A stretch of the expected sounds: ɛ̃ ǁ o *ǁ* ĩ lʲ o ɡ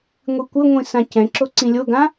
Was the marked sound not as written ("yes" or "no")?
yes